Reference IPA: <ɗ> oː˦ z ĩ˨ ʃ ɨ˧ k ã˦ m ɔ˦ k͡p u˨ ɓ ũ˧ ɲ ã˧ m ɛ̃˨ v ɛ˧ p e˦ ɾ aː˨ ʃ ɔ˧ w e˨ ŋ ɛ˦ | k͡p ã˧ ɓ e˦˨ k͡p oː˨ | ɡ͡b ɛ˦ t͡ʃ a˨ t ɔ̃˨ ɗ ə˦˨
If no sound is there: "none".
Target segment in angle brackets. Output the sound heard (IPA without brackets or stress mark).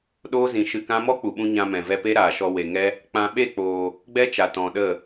ɗ